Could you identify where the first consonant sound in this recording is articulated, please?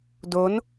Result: alveolar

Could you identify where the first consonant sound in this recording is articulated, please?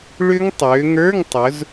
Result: retroflex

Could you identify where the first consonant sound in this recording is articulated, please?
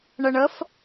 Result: retroflex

